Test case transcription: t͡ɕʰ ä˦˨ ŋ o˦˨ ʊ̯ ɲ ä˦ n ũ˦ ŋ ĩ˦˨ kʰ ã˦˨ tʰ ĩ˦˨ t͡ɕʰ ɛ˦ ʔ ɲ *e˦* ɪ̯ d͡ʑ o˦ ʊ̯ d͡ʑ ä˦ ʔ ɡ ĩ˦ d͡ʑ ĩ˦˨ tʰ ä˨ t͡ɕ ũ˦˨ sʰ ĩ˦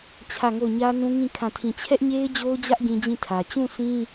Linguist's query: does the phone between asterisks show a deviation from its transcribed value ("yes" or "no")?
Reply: no